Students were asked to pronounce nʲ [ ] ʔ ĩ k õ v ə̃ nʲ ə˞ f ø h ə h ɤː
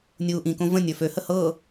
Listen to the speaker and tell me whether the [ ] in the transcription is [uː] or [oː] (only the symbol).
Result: uː